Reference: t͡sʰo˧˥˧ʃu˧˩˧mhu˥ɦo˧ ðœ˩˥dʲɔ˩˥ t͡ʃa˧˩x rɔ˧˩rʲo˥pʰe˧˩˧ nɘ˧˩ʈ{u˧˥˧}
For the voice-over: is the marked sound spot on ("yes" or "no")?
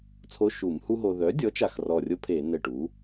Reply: no